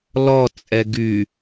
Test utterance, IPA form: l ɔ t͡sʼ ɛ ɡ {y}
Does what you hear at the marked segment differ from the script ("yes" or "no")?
no